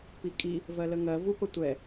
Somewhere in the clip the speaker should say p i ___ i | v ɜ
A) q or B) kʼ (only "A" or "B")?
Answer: B